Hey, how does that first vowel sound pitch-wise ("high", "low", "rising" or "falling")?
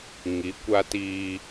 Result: rising